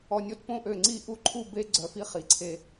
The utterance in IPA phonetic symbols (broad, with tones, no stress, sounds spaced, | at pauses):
ɔ˧˩ nʲ o˥ t p õ˥˧ ʔ ø˧˩ ŋ͡ǀ i˥˧ ʔ u˥˧ ǃʰ u˥˧ b e˥ ɡ͡ǀ œ˧˩ f i˥˧ χ i˩˧ ǀʰ e˧